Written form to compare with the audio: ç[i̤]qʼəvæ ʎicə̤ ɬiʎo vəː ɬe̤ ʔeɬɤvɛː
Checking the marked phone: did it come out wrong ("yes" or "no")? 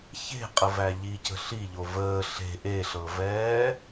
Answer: yes